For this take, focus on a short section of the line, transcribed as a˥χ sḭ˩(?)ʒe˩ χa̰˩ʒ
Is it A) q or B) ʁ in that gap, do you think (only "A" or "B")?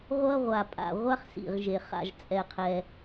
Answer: B